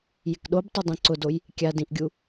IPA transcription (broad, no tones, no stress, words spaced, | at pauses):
jɪkɗobtˤo dˤẽǀʊdoj | kʲadĩʔɡʲu